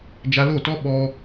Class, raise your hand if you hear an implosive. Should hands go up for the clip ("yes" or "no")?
yes